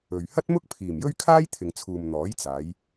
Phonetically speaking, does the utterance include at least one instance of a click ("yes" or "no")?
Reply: no